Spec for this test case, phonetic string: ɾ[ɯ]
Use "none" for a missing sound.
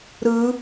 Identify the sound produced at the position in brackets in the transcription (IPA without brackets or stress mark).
ɯ